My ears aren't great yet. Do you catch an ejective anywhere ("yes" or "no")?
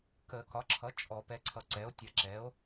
yes